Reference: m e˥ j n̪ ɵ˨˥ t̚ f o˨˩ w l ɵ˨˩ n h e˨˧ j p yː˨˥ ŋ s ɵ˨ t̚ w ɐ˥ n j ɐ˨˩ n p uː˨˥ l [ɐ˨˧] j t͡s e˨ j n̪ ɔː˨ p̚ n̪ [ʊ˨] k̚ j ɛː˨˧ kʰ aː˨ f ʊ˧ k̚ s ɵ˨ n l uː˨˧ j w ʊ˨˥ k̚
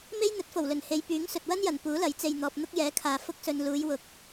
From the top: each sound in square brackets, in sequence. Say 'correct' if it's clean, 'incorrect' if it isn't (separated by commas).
incorrect, incorrect